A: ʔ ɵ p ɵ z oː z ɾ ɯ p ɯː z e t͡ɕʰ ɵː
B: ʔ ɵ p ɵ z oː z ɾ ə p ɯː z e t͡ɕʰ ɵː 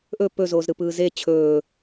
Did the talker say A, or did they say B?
A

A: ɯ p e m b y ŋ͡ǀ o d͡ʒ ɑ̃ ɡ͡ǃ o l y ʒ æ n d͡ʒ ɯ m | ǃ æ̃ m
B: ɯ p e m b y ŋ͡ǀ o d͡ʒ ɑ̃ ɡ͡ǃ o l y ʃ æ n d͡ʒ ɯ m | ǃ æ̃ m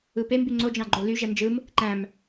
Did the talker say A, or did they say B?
A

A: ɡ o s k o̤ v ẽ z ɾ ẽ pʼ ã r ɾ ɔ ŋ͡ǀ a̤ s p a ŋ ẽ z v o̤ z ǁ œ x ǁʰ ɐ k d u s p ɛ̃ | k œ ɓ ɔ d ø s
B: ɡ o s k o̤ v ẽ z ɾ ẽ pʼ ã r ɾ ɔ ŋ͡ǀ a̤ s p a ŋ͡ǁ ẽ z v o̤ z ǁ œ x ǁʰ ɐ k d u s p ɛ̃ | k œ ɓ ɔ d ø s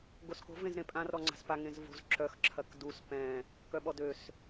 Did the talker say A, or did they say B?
A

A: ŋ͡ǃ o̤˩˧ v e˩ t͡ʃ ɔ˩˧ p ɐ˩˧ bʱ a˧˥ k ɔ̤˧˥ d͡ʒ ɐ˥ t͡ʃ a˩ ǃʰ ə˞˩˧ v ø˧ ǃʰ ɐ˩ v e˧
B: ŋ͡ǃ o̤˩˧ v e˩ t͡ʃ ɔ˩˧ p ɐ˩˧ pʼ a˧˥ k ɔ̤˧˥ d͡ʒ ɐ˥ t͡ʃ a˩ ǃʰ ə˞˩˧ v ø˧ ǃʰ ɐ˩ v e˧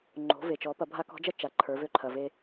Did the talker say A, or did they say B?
A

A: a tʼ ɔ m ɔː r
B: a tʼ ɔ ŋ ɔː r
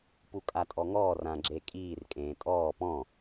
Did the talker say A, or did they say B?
B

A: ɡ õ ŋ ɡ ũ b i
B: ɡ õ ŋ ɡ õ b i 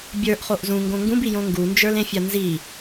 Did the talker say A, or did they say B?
A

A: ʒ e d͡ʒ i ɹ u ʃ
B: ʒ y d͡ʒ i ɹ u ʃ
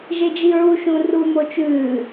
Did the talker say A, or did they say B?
A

